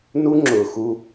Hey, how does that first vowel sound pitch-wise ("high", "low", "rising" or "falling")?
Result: high